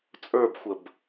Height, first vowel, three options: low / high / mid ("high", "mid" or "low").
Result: mid